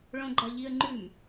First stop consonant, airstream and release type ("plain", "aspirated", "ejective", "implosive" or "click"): click